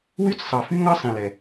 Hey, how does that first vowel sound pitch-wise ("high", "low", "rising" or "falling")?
high